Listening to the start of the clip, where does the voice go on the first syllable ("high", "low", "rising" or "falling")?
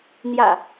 low